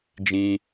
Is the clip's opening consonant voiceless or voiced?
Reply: voiced